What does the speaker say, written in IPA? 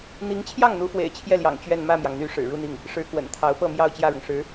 n̪ i˧˥ ŋ t͡ɕʰ j ɑ˥˩ ŋ n̪ u˧˥ f w ḛ˨˩ ɪ̯ t͡ɕʰ j ɛ˥˩ l j ɑ̰˨˩ ŋ t͡ɕ ɥ ɛ˥˧ n m ä˥˩ m j ɑ˩ ŋ n̪ y˧˥ ʂ ɻ̩˨˩ ɻ u˥˧ n̪ i˥˩ ŋ | ʂ ɻ̩˧˥ k w ə̰˨˩ n t̪ʰ ɑ˧˥ ʊ̯ p ɤ˥˧ m j ɑ˥˧ ʊ̯ t͡ɕ j ä˥˩ ɻ ʊ˩ ŋ ʂ ɻ̩˧˥

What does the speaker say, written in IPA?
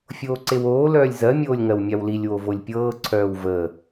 fʲ oː ǀ e w oː l œː lʲ z ɜ mʲ oː lʲ ŋ ɜ w mʲ a w l i lʲ w o v o lʲ pʲ ɤː ǀʰ œː w v əː

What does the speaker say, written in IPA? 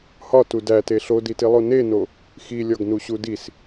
h ɒ t u d æ t e ɬ o d i t i lˠ o n e n o | x i lʲ ɒ ɡ n u ɕ u d i s

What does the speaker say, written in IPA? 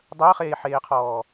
dˤ əː χ eː ħ eː qʰ ɔː

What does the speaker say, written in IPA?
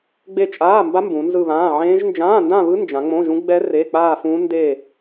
ɡ͡b e˥˧ t͡ʃʼ aː˧˥˧ m b a˦˥ m b ũ˨˦ n z ɯ˥˧ β ãː˧˥˧ ʕ ẽː˦˥ ʒ n d͡ʒ ãː˧˥˧ n d ã˥˧ β ɯ˦˥ n d͡ʒ ã˨˦ ŋ͡m õ˧˥˧ ʒ ũ˦˥ ɡ͡b ɛ˦˥ r e˧˥˧ k͡p aː˥˧ f ũ˦˥ n d e˥˧

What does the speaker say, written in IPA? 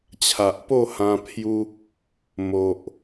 t͡ɕʰ a˨ ʔ p o˥˧ h ã˧ pʰ j u˧ | m o˨ ʔ

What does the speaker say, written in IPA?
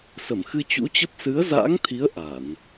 s ə˧˩ m x ɨ˧ t͡ɕ ṵ˧˥ t͡ɕ ə˦˥ p̚ s ɨ˨˦ ə̯ z a̰ː˧˥ ŋ t̪ʰ i˨˦ ə̯ ʔ a˧˩˨ n

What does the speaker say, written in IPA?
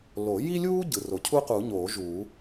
l o˨˩˦ j i˥ lʲ uː˥ ɟ ɯ˩ r o˩ cʰ u˥ q u˨˩˦ ɲ oː˨˩˦ ʒ uː˨˩˦

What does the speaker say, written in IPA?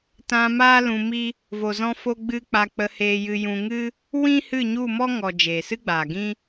t ã˧ m aː˦ l ũ˧ m i˦ | v o˨ z ɔ̃˧ f o˧ ɡ͡b ɨ˦ k͡p a˧ k͡p ə˧ h eː˧ j ɨ˧ j ũ˧ ŋ ɨ˦ | w ĩ˦ h ɨ˦˨ ɲ u˦˨ m ɔ˦ ŋ ɔ˨ d͡ʒ eː˨ s ɨ˦ ɡ͡b aː˨ ɡ ĩ˦

